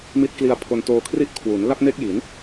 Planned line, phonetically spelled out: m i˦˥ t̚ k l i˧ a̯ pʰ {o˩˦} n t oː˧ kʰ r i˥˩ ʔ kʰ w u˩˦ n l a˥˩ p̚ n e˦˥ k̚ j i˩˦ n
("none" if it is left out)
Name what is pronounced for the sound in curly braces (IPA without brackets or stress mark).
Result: o˧